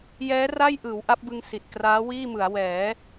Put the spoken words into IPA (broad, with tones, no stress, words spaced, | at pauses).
jɛː˦˥ra˥˩jʔɯː˩˦w ʔa˦˥p̚bɯ˧ŋ si˨˩t̚ kraː˦˥wiː˥˩mɯ˩˦a̯ wɛː˩˦